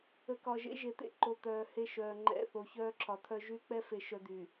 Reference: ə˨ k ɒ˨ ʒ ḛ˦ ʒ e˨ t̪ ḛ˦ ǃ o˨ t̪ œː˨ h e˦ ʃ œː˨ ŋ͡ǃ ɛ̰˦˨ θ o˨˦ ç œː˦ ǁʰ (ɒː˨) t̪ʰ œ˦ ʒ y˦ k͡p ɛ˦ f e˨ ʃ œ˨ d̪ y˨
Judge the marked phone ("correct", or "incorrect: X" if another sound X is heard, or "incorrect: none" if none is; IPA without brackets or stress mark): incorrect: ɒ˨